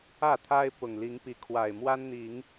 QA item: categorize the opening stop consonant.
aspirated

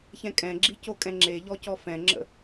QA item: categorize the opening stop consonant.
ejective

